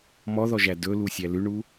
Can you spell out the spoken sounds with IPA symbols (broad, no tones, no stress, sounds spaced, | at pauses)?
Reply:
m ɔ ð ɔ ʒ æ d ɵ l u sʲ æ l ʉ ɳ u